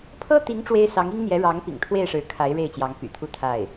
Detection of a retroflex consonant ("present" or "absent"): present